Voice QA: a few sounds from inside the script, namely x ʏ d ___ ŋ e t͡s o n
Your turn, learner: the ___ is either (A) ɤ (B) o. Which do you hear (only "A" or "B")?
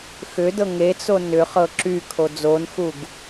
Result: A